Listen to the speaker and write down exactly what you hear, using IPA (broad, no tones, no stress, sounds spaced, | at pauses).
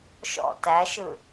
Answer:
ʃ ɔ̰ t æ ʃ ɯ